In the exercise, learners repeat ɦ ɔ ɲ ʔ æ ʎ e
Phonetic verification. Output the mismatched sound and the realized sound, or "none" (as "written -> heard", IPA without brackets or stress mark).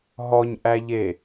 none